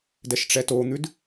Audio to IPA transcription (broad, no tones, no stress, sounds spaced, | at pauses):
d ɛ ʃ ʈ͡ʂ ɛ t o n̪ ʉ d